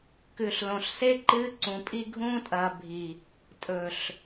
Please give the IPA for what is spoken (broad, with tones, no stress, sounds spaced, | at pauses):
k ʉ˨ ɬ l õ˨ ɬ s e˦ ǃ ɨː˦ ǀ ũ˨ pʼ i˦ ɡʱ ũː˦ tʼ ɐː˨ bʱ i˨ | tʼ ɵ˨ ɬ